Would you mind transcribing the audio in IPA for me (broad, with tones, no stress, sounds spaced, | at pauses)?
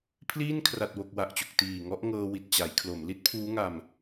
pʰ l iː˥˩ n kʰ r a˨˩ t̚ w o˨˩ k̚ w a˨˩ ʔ t͡ɕ u˨˩ k̚ t iː˨˩ ŋ ɔ˦˥ ʔ ŋ ɤː˧ w i˨˩ t̚ t͡ɕ a˩˦ j kʰ l o˩˦ m l i˦˥ t̚ pʰ uː˦˥ ŋ a˧ m